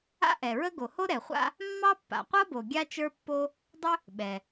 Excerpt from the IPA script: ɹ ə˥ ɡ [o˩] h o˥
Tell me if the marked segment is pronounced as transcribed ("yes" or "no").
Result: yes